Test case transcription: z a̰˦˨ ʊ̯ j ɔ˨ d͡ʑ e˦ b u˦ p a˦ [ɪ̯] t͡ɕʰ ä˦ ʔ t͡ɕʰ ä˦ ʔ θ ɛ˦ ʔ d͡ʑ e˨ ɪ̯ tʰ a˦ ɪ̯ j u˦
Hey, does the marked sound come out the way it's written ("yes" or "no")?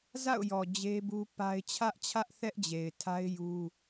yes